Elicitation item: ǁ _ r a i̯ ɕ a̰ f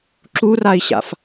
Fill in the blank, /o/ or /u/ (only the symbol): u